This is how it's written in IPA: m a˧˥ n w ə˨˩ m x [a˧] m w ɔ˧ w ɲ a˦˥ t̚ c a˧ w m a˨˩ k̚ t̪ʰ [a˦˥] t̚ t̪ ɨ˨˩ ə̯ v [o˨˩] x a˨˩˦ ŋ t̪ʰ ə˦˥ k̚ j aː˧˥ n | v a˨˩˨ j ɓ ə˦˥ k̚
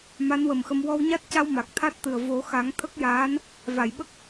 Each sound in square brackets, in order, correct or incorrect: incorrect, correct, incorrect

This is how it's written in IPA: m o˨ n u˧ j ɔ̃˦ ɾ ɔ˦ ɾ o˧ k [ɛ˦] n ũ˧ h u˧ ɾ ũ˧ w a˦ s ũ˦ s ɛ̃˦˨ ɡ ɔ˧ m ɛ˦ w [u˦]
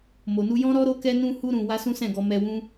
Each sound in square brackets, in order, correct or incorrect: incorrect, incorrect

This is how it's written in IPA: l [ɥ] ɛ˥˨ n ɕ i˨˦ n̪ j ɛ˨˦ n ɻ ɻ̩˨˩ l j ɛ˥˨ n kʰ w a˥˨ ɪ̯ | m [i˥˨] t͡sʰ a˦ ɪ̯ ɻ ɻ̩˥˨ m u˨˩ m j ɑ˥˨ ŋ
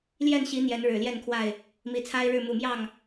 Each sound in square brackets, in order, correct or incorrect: incorrect, incorrect

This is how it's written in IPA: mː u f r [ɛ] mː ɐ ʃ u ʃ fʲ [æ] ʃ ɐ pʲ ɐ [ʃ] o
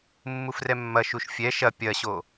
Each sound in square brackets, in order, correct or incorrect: correct, incorrect, incorrect

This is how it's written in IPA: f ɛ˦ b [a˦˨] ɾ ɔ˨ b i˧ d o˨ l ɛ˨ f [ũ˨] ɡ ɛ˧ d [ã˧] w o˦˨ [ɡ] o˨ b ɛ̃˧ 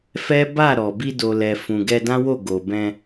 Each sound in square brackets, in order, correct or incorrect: correct, correct, incorrect, correct

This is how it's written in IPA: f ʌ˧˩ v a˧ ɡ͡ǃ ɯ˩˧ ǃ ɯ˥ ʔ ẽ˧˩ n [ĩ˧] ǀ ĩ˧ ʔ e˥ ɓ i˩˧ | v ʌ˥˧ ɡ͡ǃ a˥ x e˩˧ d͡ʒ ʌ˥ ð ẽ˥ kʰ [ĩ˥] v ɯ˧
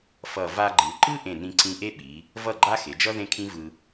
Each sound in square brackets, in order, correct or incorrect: correct, correct

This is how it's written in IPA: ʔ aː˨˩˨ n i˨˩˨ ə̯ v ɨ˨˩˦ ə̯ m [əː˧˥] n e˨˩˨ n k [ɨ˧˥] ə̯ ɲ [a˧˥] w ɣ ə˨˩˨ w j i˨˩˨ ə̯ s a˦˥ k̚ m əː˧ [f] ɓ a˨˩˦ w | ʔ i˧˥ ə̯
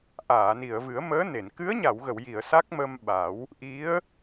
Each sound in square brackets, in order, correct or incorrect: correct, correct, incorrect, incorrect

